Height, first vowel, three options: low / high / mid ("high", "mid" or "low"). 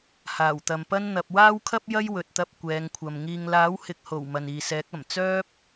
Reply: low